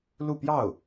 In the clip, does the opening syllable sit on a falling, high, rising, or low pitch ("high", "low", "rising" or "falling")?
falling